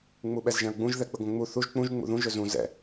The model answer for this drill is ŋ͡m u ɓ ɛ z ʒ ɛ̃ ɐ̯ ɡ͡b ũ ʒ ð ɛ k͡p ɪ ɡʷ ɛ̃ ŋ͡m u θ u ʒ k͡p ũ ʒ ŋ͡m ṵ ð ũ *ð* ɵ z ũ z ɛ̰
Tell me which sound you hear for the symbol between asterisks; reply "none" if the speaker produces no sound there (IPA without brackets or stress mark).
ʒ